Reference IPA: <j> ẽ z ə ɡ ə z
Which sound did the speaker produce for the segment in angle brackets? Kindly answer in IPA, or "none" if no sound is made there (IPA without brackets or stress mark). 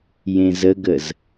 j